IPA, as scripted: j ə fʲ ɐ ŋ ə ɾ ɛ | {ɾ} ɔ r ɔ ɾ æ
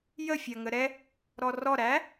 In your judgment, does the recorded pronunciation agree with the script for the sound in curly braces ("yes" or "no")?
yes